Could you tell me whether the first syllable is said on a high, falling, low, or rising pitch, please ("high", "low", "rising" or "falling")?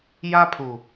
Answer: high